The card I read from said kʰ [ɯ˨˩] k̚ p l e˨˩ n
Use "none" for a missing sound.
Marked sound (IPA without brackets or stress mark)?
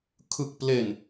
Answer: ɯ˨˩